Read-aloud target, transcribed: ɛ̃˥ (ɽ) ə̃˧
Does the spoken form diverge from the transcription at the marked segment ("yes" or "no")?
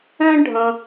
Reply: yes